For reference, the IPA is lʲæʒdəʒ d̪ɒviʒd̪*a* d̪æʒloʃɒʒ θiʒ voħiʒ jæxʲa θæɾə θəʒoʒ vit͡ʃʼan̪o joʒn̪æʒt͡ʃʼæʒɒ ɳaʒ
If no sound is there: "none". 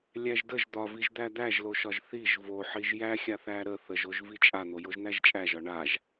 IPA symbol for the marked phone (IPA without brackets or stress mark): æ